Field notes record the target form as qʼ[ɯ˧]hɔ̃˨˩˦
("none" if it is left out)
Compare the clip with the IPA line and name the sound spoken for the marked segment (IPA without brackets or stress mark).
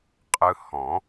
ɯ˧